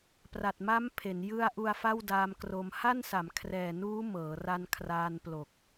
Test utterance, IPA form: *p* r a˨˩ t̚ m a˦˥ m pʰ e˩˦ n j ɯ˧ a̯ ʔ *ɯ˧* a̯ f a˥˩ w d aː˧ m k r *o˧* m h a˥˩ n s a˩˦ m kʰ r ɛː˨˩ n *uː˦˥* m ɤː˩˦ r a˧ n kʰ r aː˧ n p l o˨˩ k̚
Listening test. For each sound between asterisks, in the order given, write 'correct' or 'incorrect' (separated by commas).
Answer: correct, incorrect, correct, correct